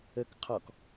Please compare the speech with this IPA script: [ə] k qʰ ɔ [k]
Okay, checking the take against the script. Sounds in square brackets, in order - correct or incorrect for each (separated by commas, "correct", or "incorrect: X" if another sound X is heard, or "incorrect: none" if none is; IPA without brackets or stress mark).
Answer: correct, correct